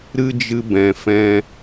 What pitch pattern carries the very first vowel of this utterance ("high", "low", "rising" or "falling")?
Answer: high